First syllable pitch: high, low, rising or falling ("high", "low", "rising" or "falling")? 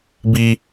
high